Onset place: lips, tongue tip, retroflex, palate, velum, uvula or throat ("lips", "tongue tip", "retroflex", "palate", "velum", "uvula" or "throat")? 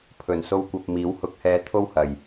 lips